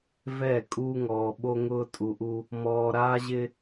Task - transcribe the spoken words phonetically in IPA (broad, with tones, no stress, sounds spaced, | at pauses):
v ɛ˦˨ kʼ uː˦ ŋ ɔː˨ ɓ o˦ ŋ ʊː˦ tʼ u˨ ʔ u˦ | m ɔː˨ ɾ aː˦ ʑ ɪ˦